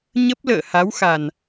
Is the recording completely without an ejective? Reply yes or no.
yes